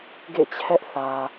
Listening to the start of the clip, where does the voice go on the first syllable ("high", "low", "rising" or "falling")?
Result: falling